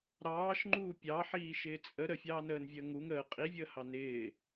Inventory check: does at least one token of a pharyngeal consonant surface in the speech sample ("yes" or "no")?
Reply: yes